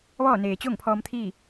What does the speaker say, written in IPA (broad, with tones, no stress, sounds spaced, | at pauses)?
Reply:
ʋ ɔː˥˨ n eː˩ t͡ɕ o˥˨ ŋ pʰ ɔː˧ m t̪ʰ iː˥˨